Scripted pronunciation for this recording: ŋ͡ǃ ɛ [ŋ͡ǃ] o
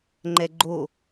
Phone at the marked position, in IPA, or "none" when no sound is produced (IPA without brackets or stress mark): ɡ͡ǃ